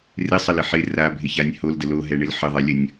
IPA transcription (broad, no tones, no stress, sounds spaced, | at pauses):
r ɪ sˤ ə l ɪ ħ ɪ r a bʱ ɪ ç a nʲ h o l d ə l o ɦ ɛ ɳ ɪ l ħ ə ðˤ ɛ lʲ ə nʲ